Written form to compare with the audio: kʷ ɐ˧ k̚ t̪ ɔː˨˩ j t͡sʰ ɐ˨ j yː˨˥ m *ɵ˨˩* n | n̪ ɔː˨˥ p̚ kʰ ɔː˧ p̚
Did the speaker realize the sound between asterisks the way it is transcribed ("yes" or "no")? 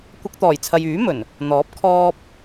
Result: yes